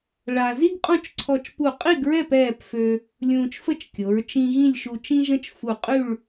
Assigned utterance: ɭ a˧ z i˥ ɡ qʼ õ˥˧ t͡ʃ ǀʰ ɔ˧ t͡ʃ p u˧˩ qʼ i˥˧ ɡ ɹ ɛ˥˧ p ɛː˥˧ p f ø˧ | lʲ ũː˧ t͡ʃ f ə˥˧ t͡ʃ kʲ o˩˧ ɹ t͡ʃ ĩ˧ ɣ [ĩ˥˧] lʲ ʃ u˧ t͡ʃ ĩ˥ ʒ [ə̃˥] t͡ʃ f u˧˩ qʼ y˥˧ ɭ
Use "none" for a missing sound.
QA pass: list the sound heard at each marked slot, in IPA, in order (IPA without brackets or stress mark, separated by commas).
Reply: ĩ˥˧, ə̃˥